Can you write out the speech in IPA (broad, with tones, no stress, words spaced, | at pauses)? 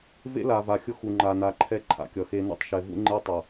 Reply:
vḛ˦la˨va˨xʲʊ˦ xu˨ŋ͡ǃa˨na˨ǃʰɛ˦ ǃʰa̰˨kʲʌ˨xe˦ nṵ˦tˤʃɛ˨ vṵ˦ŋ͡ǃe˦tˤʌ˨